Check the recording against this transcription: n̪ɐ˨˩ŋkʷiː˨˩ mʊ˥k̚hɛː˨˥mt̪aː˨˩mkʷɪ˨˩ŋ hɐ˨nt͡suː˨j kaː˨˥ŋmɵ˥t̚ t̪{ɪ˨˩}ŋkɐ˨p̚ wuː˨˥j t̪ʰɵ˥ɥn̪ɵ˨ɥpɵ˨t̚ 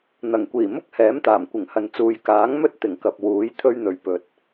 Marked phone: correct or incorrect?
correct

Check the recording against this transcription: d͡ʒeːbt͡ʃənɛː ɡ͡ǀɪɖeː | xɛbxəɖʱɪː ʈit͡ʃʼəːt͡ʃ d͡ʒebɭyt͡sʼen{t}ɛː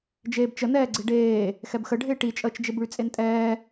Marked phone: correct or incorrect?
incorrect: tʼ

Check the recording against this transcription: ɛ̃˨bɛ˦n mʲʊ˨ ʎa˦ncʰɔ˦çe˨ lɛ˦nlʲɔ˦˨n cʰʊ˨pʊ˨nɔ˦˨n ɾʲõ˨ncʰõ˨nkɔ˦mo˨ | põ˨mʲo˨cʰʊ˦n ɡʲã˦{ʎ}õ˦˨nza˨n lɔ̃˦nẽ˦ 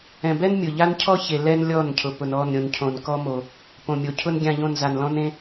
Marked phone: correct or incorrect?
correct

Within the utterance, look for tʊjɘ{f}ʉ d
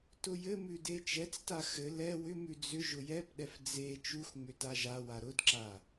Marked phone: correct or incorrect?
incorrect: m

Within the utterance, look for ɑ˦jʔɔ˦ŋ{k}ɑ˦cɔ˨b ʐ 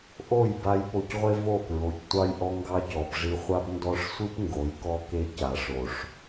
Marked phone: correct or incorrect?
incorrect: ɡ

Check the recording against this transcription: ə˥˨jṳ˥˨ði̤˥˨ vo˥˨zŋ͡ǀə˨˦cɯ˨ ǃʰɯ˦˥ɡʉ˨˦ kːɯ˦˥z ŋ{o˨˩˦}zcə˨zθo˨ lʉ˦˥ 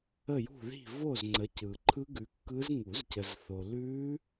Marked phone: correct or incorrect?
incorrect: u˨˩˦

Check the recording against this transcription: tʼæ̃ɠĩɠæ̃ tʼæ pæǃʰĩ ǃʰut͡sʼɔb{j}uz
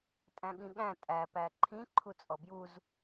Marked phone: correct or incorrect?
correct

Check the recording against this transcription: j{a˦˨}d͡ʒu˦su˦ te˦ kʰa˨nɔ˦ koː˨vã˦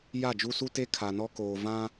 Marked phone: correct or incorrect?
correct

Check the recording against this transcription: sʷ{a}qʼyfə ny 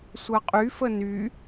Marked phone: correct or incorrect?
incorrect: ɐ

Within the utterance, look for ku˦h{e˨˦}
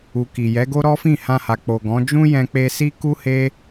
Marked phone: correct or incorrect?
incorrect: e˦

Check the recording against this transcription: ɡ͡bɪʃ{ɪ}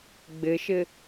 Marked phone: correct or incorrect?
correct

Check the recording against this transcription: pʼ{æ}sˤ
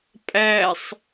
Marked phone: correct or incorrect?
correct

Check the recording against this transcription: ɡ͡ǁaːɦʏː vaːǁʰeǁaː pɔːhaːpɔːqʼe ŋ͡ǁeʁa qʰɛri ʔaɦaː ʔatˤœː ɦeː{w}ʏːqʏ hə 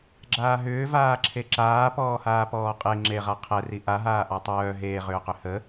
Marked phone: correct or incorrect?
incorrect: ʁ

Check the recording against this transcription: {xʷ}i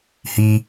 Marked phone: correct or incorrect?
incorrect: h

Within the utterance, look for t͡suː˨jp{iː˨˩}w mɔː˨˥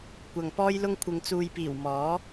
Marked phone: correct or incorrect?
correct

